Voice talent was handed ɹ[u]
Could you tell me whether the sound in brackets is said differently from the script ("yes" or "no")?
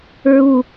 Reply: no